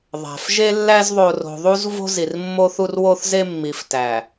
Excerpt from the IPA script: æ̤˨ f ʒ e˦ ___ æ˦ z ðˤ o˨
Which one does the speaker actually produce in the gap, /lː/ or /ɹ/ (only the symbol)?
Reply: lː